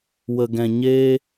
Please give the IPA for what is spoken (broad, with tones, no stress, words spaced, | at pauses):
wə˨ ɡɛ̃˨ ɲeː˧